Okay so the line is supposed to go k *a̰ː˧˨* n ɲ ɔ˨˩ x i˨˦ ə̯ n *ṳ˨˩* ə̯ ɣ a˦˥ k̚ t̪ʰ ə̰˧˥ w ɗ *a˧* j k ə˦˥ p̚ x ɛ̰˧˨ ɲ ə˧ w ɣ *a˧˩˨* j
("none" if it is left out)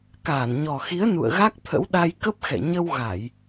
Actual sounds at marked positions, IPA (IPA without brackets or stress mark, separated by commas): aː˧˩, ṵ˧˨, a˧, a˧˩˨